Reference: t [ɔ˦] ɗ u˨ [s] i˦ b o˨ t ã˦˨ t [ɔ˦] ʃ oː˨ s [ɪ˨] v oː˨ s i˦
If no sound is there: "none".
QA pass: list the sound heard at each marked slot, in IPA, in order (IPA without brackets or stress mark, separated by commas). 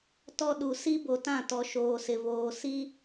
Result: ɔ˦, s, ɔ˨, ɪ˨